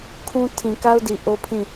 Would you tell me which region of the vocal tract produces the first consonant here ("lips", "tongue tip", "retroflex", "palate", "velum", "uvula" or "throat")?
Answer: velum